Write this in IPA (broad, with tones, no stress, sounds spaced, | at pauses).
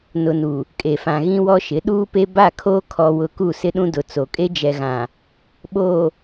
n ʊ˨ n u˨ | kʼ e˨ f ã˨ ɣ ĩ˦ w ɔ˦ ʃ ɪ˨˦ ɗ uː˦ p e˦ b a˦˨ kʰ oː˦ kʰ ɔ˨ w ʊ˨ k u˦˨ s ɪ˦ ɗ ũ˦ d ʊ˨ t͡s o˨ kʼ e˦ d͡ʒ ɛ˨ ɣ ã˨ | ɓ oː˨